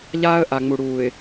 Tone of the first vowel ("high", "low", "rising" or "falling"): high